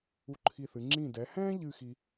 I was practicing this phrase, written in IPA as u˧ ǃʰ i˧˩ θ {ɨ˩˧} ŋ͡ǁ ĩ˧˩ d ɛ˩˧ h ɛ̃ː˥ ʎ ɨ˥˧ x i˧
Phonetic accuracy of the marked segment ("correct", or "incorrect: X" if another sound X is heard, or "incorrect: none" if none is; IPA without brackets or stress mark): correct